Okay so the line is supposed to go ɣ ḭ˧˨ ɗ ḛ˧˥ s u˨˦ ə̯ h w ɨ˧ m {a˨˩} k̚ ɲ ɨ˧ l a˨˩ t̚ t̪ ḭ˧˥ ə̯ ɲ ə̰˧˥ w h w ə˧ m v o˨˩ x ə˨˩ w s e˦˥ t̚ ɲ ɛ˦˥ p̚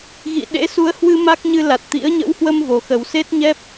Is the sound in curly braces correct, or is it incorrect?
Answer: incorrect